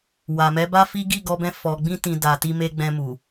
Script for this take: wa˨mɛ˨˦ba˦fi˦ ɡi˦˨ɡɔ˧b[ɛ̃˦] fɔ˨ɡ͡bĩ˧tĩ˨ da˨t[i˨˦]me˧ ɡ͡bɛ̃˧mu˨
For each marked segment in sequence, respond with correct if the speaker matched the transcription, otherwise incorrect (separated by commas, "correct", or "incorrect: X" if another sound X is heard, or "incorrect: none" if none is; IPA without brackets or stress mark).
incorrect: ɛ̃˧, incorrect: i˧